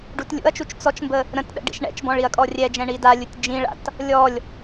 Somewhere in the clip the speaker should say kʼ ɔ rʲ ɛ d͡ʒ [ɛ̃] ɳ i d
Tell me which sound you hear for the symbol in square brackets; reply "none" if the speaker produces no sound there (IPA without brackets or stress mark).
ɛ̃